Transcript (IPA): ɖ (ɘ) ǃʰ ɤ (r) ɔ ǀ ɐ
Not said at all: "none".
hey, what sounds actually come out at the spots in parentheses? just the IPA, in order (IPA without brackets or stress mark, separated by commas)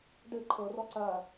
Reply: ɘ, r